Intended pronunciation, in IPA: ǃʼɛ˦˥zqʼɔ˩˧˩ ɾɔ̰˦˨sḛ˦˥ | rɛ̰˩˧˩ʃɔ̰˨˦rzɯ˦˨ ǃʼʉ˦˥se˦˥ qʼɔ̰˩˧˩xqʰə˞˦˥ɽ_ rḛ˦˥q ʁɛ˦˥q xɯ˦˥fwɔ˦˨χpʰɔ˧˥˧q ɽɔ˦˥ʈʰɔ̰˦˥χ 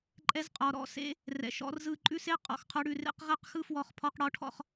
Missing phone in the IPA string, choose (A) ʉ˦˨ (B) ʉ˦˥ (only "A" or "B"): A